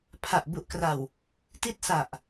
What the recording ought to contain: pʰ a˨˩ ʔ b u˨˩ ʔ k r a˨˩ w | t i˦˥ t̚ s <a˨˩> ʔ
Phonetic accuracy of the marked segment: correct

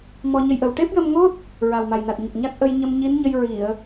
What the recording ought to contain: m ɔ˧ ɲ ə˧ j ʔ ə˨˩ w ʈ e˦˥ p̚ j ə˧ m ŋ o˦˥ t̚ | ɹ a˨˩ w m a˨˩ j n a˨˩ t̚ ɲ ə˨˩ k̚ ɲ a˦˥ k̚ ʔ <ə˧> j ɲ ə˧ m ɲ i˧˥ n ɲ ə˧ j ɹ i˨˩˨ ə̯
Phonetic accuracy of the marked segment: correct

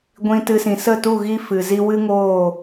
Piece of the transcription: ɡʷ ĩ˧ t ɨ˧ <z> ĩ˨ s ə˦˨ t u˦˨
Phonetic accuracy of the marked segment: incorrect: s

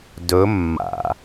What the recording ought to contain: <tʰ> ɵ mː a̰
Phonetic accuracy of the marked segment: incorrect: d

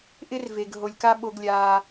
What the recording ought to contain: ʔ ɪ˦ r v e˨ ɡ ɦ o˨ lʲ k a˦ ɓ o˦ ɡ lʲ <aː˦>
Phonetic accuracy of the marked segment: correct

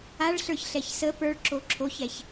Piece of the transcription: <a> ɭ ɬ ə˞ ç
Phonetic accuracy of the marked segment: correct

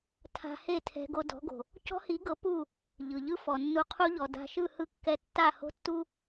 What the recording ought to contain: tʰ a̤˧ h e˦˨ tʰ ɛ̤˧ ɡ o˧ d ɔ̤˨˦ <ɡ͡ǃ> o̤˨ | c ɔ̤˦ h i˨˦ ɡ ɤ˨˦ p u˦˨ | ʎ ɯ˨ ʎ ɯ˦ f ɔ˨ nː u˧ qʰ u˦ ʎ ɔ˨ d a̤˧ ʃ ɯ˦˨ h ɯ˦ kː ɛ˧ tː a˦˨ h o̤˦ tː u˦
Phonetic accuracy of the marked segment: incorrect: ɡ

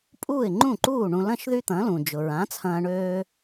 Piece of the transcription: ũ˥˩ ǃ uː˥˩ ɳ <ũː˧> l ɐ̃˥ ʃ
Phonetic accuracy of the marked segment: incorrect: ũ˧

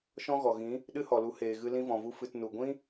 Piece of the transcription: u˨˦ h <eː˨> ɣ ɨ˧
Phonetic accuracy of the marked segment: correct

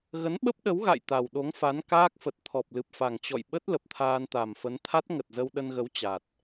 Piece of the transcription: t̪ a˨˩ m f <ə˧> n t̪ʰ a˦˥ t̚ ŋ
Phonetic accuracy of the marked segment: incorrect: ə˨˦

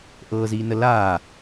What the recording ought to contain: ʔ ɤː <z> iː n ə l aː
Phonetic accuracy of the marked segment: correct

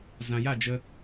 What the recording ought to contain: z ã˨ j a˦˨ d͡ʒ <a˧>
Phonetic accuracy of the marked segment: incorrect: ə˧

